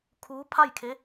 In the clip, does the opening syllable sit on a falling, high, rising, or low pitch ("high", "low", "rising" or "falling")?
rising